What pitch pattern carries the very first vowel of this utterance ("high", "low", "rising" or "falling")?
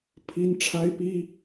high